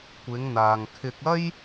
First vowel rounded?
no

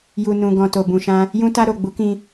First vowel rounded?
yes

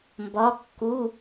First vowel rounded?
yes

